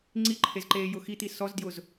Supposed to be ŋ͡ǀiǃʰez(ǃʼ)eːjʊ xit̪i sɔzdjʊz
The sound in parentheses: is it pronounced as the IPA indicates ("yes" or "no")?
no